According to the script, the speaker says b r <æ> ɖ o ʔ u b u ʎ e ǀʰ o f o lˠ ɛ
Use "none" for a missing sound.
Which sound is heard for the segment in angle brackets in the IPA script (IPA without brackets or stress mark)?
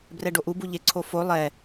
ɛ